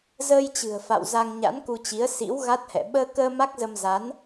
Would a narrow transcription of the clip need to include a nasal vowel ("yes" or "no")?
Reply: no